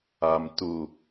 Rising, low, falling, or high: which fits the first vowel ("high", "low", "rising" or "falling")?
low